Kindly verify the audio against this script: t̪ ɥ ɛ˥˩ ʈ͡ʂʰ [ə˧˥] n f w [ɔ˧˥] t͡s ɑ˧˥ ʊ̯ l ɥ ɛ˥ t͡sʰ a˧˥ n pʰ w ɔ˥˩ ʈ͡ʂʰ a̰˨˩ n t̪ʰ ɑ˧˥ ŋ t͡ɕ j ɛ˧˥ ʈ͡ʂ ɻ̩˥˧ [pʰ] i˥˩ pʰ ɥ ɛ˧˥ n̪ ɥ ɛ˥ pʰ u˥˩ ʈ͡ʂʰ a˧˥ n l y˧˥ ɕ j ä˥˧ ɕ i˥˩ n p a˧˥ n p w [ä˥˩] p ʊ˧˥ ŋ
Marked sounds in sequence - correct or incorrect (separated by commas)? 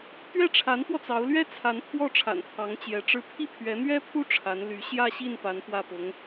incorrect, incorrect, correct, correct